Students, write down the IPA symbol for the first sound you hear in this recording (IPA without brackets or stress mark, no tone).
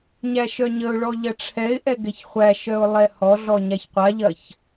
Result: ɲ